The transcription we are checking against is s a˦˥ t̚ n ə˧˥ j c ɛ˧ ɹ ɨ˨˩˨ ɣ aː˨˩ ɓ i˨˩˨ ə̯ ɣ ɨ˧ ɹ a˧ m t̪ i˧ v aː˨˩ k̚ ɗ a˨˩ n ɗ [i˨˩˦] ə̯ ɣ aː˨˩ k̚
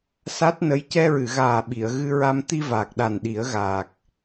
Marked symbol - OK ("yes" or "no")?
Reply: yes